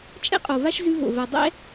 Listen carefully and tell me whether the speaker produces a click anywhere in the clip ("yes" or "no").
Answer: no